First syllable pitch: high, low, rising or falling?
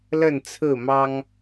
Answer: falling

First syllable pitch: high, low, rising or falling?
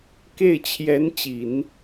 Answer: falling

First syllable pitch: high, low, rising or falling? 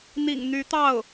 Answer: low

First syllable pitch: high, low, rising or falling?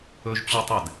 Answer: high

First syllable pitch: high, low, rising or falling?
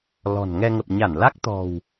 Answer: low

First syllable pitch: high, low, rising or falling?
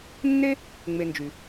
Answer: high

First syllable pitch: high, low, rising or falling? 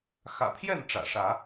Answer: low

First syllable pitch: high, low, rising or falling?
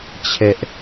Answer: high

